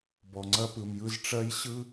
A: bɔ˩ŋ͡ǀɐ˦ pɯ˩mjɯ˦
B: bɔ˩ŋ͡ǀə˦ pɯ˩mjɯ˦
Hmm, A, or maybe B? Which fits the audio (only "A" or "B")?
A